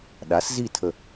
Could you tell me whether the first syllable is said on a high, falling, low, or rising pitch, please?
rising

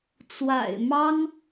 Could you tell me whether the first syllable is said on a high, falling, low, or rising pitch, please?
low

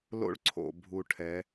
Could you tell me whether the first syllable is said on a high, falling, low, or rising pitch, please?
high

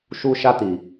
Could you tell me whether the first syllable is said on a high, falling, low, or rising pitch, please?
high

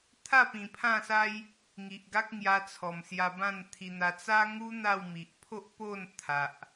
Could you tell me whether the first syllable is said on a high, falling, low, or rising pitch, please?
falling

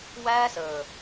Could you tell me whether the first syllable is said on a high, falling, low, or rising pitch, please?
high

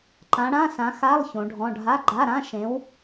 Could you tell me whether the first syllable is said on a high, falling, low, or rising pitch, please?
rising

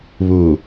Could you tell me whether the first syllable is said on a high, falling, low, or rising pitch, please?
low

